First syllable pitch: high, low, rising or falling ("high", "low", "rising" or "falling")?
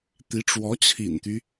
rising